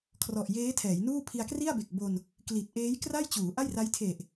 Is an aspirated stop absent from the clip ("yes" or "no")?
no